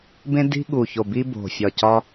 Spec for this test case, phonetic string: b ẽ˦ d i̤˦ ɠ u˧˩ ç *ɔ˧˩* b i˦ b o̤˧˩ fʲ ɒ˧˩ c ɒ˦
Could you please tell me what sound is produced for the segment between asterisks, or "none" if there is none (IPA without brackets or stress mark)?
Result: o˧˩